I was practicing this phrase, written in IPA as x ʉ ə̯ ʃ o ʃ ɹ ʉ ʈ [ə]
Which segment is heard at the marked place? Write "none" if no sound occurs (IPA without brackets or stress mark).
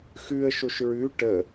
ə